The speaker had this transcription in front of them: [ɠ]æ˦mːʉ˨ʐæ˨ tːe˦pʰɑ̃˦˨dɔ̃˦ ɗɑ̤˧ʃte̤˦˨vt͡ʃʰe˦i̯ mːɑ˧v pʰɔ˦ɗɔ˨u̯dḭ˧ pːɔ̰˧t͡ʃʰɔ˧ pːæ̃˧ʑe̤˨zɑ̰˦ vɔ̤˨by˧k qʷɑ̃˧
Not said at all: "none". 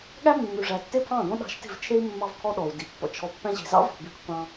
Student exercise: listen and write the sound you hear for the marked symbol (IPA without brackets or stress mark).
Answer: ɠ